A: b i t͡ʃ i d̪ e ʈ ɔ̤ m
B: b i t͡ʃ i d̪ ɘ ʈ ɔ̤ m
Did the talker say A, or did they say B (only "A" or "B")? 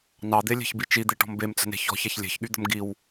A